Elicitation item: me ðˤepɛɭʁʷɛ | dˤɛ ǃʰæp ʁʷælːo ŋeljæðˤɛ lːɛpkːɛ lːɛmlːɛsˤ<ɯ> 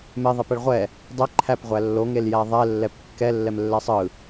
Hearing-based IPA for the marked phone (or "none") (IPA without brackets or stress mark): ɯ